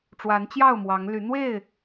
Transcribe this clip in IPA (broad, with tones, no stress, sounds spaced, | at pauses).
ʈ͡ʂ w a˨˦ n t͡ɕ j ɑ˥˨ ʊ̯ m w ɑ˨˦ ŋ l y˨˦ n̪ w e˥˨ ɪ̯